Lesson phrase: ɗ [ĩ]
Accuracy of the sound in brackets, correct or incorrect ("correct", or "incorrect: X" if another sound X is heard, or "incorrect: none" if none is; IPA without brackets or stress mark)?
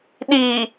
incorrect: i